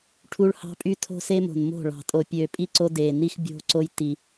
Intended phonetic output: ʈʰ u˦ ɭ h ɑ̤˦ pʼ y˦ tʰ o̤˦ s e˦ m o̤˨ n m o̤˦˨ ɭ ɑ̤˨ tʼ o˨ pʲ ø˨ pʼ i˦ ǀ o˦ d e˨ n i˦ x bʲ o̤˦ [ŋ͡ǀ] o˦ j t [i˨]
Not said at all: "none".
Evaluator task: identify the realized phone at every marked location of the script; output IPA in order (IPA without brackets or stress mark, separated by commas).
ǀ, i˨